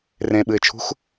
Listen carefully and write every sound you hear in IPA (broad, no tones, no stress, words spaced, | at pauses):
rẽɓɨɪ̯t͡ʃʰṳx